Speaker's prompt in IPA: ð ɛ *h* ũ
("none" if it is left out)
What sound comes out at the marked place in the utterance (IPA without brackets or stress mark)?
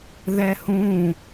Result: h